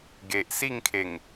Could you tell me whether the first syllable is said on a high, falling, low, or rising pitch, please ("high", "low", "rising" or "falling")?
low